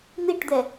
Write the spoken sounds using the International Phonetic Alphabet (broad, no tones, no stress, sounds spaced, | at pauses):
n̪ i ʈ d̪ ɛ